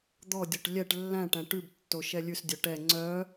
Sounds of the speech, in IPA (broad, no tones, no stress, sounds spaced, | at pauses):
d̪ ɔ dʲ o ʈ lʲ ɛ ʈ lː æ̃ ʈ æ̃ ʈ ʉ b tː o ʃ ɛ lʲ ʉ s dʲ œ ʈ ɛ ŋ͡ǀ œ